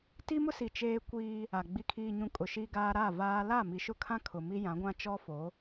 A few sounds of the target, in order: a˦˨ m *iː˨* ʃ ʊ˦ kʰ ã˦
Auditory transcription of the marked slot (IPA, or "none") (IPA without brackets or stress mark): i˨